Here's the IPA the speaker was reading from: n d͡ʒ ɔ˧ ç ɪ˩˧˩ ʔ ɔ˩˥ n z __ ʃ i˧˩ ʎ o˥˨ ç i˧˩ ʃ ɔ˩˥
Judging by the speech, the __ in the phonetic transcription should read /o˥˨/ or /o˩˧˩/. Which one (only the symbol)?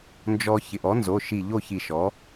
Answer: o˩˧˩